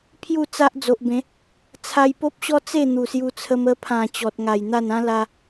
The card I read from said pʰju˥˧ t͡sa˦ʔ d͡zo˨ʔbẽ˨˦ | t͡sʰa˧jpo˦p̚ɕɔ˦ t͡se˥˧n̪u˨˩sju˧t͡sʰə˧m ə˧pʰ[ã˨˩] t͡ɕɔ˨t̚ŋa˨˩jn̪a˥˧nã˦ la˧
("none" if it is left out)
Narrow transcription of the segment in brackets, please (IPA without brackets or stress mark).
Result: ã˨˩